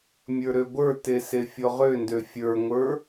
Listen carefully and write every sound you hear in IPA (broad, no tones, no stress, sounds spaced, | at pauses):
mʲ ə˞ ɾ ø ɡʷ ə˞ t e s e fʲ ɔ ʁ ø n d ø fʲ ə˞ ŋʷ ə˞